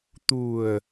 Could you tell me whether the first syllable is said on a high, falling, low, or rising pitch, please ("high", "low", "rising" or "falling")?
low